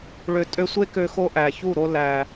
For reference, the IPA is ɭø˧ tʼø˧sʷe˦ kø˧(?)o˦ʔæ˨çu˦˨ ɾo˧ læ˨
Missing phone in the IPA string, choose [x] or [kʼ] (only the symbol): x